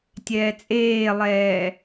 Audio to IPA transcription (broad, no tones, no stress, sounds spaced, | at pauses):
tʲ ɛː t͡sʼ eː lˠ ɛː